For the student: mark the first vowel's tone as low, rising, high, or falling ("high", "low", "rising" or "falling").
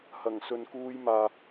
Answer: low